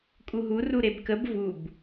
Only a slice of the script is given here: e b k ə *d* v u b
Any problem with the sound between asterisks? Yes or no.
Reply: yes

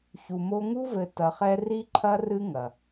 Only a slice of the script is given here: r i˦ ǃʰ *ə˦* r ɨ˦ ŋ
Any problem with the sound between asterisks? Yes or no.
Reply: yes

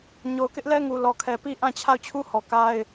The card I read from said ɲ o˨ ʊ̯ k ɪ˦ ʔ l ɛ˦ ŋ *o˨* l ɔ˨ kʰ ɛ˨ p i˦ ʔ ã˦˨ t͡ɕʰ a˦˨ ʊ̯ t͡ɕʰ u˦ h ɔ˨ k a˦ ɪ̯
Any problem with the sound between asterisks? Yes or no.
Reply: yes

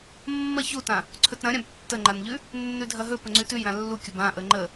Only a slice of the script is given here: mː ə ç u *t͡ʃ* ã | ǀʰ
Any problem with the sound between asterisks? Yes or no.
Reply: yes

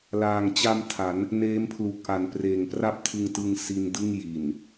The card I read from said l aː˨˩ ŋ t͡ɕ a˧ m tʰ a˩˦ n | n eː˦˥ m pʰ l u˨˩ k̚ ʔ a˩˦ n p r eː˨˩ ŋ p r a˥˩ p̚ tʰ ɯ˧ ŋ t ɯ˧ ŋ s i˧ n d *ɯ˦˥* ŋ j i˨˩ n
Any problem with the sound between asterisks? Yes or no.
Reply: yes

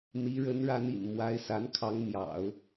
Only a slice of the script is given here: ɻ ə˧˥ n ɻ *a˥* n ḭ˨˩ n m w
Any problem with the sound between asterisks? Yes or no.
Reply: yes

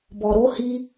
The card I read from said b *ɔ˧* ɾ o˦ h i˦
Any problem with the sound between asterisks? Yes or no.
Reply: no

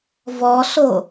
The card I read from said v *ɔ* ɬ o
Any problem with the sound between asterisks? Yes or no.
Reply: no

